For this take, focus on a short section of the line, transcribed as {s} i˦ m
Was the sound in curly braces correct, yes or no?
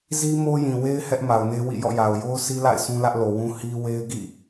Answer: no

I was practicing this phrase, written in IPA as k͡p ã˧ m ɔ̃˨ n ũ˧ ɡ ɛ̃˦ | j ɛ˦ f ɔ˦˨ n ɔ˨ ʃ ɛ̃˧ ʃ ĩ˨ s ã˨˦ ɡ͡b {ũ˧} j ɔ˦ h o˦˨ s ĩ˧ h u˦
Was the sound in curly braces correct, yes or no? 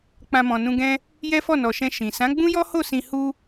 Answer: no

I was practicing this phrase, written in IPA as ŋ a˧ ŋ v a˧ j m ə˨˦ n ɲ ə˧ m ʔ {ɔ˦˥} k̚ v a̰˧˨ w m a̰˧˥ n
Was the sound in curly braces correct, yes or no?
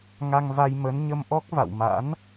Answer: yes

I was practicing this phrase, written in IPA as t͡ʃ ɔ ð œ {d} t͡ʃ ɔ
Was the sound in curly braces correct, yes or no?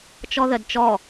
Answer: yes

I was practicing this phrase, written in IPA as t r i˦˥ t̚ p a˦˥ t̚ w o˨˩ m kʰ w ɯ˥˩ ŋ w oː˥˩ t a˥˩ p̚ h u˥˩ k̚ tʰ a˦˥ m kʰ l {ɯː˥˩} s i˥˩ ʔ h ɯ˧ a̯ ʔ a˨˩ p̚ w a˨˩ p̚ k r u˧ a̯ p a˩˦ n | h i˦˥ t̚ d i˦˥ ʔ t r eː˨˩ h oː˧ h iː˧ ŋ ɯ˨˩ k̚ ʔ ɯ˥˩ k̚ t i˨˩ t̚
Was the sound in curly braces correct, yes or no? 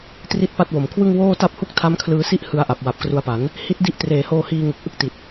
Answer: no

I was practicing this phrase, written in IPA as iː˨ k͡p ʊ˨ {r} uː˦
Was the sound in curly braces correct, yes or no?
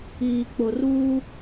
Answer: yes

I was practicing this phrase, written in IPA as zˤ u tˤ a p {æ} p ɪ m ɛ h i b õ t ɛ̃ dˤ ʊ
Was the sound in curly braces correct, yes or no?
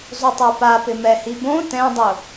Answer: no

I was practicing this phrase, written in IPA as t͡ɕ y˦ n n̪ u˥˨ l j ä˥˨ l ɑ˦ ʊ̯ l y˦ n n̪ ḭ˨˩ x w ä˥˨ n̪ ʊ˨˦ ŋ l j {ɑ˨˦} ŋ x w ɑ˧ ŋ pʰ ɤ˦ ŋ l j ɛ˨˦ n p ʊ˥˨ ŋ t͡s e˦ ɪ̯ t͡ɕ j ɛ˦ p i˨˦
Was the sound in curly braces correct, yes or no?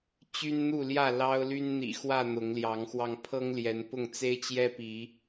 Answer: yes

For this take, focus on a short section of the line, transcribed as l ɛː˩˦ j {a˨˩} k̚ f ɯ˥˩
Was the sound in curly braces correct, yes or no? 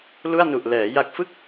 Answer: yes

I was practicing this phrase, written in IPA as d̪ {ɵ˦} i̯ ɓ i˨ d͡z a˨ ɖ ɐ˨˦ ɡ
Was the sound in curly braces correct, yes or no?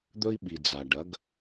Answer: yes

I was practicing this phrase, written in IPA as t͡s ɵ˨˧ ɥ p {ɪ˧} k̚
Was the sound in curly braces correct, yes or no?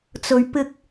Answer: yes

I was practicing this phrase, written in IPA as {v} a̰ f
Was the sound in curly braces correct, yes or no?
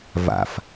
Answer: yes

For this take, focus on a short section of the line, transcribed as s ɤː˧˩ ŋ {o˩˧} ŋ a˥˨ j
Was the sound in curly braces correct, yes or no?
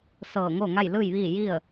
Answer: no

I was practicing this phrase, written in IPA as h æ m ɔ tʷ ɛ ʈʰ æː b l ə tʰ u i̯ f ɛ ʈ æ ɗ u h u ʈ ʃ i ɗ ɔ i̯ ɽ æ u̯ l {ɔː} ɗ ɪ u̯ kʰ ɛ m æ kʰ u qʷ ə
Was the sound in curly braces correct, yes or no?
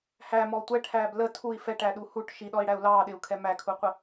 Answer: no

